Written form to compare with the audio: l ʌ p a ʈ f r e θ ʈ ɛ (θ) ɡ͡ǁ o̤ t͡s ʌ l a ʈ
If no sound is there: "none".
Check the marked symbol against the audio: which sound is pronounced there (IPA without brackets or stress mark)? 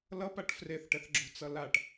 θ